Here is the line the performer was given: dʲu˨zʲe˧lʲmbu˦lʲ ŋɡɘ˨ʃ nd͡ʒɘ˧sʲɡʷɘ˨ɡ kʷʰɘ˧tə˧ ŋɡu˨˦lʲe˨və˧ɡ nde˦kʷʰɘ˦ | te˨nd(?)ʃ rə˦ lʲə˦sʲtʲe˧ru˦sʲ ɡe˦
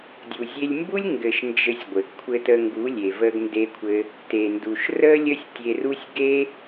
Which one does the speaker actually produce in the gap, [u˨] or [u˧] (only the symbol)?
u˨